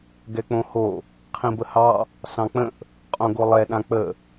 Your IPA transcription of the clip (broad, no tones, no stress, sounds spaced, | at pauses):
ɡ ɛ k͡p õ h o | qʰ ĩ b ə h ɑ | s ɑ̃ k͡p ə̃ ʔ | qʼ õ ɡ o lˠ ɛ ɗ ã k͡p ə